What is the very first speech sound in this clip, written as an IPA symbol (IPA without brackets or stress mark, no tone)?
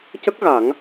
c